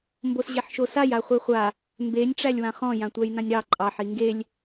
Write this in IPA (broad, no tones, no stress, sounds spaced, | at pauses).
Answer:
m b o s ʑ e ħ ʃ o s a j a χʷ i χʷ a | m b e nʲ ʈ͡ʂ æ lʲ w ã χ ɔ̃ j ã tʷ æ j n ã nʲ ɾ ɑ ǃʼ ɑ ħ i ŋ ɡ e lʲ